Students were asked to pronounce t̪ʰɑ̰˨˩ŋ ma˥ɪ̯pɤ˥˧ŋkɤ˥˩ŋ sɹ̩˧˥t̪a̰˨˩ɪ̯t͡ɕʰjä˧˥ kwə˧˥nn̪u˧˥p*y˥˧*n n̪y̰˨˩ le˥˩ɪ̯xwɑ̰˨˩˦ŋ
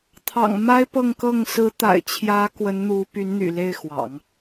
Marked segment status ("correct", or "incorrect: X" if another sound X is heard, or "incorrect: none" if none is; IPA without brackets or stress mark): incorrect: y˧˥